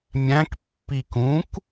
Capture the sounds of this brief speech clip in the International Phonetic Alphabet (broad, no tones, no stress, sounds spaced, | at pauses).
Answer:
mʲ æ̃ k pː i k ũ k